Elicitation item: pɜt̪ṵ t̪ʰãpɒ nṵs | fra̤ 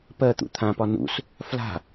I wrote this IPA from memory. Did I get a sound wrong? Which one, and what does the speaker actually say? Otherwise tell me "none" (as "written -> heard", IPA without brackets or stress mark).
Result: r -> l